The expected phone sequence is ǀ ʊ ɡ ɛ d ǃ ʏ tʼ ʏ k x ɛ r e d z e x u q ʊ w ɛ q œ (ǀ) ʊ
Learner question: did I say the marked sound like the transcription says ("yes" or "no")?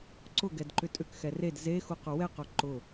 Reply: no